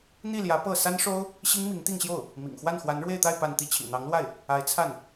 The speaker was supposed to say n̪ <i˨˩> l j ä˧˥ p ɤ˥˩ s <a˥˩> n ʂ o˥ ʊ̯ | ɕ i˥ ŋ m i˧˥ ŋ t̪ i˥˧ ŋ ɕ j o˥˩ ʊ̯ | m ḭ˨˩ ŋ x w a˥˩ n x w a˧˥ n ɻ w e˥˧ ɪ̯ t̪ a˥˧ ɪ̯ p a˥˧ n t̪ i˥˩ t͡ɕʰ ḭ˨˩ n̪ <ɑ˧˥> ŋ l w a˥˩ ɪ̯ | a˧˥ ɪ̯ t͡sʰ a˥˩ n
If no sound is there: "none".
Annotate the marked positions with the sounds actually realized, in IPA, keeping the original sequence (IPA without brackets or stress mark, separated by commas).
i˥˩, a˥, ɑ˧˥